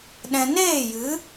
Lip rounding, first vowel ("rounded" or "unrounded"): unrounded